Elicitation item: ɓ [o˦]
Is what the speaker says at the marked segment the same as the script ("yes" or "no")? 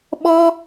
no